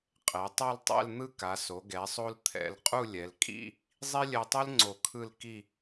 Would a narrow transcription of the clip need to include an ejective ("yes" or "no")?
yes